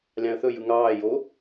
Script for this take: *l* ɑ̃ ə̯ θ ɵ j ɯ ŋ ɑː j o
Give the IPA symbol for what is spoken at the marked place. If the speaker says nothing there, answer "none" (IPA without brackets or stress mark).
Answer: lʲ